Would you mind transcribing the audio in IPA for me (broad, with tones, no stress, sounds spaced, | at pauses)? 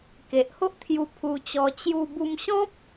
k e˨ ʔ h o˦ ʔ t̪ʰ j u˧ pʰ u˧ t͡ɕ ɔ˧ t͡ɕ j u˧ b u˧ m ɕ ɔ̃˦ p̚